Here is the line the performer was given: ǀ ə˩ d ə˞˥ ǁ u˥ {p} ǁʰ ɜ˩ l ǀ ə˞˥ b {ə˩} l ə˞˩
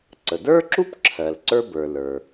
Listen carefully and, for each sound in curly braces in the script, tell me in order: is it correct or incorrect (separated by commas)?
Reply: correct, incorrect